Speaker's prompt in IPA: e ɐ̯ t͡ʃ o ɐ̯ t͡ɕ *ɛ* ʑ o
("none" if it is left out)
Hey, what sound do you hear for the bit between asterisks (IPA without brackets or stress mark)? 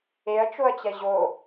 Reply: ɛ